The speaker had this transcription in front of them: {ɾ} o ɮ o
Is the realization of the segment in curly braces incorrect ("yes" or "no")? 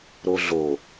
no